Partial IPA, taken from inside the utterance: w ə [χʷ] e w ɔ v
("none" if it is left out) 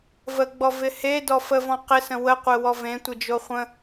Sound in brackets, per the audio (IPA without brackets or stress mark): qʷ